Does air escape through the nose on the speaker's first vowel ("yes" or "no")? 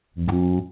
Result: no